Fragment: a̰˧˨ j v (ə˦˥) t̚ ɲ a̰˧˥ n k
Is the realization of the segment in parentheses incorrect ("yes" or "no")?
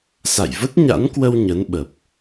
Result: no